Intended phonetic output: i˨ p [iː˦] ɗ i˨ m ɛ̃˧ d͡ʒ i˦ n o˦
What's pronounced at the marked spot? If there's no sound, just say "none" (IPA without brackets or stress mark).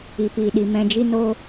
iː˨